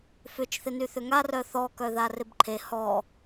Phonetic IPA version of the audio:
f ʏ t͡ʃ θ ɪ n y θ ʏ ŋ a r œ θ ɔ k œ ð a r ɪ b ǃʰ e h ɔ

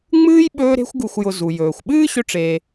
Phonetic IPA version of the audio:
ŋ͡m ɨː˥ j ɓ ɵː˦ ɾ e̤˦ xʷ ɡ u˨ xʷ j ʊ˨ z u˩ j ɵː˩ xʷ ɓ ɨː˥ ɕ ɵ˦ ʈ͡ʂ eː˨

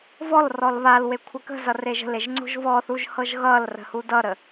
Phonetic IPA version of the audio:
v ɔ l r ɔ l β a l w e kʷʰ ʌ k ə̤ z ʌ r e ʒ ə̤ l e ʒ ŋ͡ǀ o̤ ʒ v ɔ θ u ʒ h ɤ ʒ ɣ ʌ l r ə̤ h u d ʌ ɾ ə

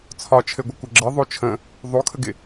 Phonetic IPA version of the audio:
t͡sʰ ɒ t͡ʃʰ ɘ ɡʷ ɪ kʷ ɘ ɡ͡ǁ ɘ ðˤ o t͡ʃʰ ə̃ | ðˤ o kʰ ə ɡ ɪ

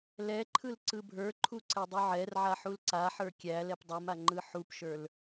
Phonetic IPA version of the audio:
l ɛ ǃʰ ɯ l ǀ ɯ bʱ ə˞ ǃʰ u ǀ ɛ dˤ u ʕ ɛ r ʕ a ħ u l ǀ a ħ ə˞ kʲ æ l ɛ p dˤ u m a ŋ͡ǃ ɯ ħ u p ʃ ə˞ l

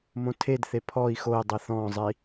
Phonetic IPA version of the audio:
m õ tʰ e d θ e pʰ ɔ i̯ x o i̯ dˤ i θ ɔ̃ zˤ i

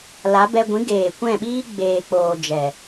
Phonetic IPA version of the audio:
l a˨˦ b ɛ˧ ɡʷ ĩ˨˦ ɡ eː˨ kʷ ɛ̃˦˨ ɓ iː˦ ɡ͡b eː˨ k͡p oː˨ d͡ʒ ɛ˨

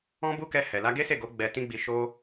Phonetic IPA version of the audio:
ɔ̃˦ b u˦ k ɛ˧ h ɛ˨ l a˧ ɡ e˦ s e˦˨ ɡ o˨˦ ɡ͡b ɛ˧ t ĩ˦ ɡ͡b i˧ ʃ o˦

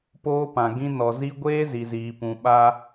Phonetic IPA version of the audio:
p oː˦ p ã˨ ɡ ĩ˦ n ɔ˨ z i˦ ɡʷ eː˦ z i˨ z iː˨ p ũ˨ ɓ a˦

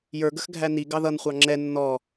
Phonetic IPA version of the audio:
j ə˞ ɡ ə x ɡʱ æ n i ɡ ɑ ð ʌ n χʷ ɑ ŋ͡ǁ ɛ nː ɔ

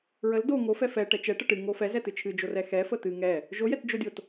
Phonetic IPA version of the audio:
ɹ ə l d o ŋ o f ɛ f ɛ ʈ ɛ t͡ʃ ɛ ʈ ə ʈ ɨ ŋ o f ɛ z ɛ t ɨ t͡ʃʰ ɨ d͡ʒ o r ɛ x ɛ f ə t̪ ɨ ŋ ɛ | ʒ o j ɛ t d͡ʒ o dʲ o t

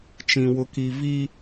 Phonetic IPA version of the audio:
t͡ʃ ĩ˦ w ʊ˦ k i˦ v i˦

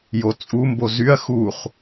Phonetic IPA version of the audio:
j o t͡sʼ u m b o z y ɐ̯ x u χ

